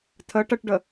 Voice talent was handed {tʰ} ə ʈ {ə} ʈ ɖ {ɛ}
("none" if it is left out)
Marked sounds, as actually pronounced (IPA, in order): tʰ, ə, ə

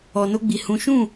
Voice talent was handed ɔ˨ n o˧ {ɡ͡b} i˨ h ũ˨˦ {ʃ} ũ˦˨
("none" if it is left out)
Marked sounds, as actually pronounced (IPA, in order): ɡ͡b, ʃ

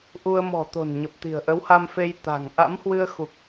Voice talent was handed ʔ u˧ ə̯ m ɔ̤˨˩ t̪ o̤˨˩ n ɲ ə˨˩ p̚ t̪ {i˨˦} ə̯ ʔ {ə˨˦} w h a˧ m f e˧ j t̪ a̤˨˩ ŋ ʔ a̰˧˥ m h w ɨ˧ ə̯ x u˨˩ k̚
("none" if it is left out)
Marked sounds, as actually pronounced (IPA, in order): i̤˨˩, ə˨˦

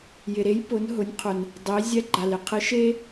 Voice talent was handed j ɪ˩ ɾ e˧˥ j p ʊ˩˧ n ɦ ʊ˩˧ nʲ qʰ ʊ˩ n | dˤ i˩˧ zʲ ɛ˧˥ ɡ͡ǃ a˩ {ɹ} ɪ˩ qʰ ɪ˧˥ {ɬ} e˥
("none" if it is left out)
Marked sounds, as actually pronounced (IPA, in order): l, ʃ

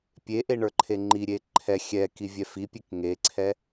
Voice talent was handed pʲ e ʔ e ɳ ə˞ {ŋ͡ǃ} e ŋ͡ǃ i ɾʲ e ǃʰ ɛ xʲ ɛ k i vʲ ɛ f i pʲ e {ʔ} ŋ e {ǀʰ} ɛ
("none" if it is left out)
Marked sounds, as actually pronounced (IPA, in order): ǃʰ, k, ǀʰ

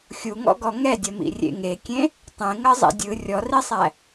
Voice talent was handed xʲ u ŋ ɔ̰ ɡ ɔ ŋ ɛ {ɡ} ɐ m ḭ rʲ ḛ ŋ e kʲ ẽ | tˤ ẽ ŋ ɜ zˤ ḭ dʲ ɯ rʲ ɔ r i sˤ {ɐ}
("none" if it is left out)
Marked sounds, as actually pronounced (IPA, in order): dʲ, æ

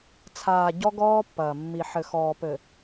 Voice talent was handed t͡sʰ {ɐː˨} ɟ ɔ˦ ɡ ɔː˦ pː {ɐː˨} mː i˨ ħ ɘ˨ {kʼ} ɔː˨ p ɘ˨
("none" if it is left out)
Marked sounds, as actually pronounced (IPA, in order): aː˨, ɐː˨, x

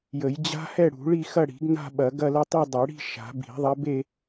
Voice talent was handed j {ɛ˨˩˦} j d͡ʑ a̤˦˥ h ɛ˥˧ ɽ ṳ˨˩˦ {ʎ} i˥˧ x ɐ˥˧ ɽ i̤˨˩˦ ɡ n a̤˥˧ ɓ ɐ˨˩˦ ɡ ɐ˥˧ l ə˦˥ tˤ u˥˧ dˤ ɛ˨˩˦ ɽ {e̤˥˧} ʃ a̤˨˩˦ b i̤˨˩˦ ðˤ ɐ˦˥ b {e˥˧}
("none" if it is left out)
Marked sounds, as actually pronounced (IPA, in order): ə˨˩˦, ɭ, i̤˥˧, e˥˧

